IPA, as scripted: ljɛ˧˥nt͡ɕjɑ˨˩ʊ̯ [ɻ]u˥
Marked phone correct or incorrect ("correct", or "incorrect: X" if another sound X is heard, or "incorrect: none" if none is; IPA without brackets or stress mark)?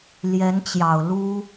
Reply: incorrect: l